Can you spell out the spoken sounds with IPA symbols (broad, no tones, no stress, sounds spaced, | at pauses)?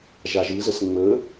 ʒ a ʒ ɯ z ə s ŋ͡m ə